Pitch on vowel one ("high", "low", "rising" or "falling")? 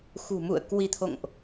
low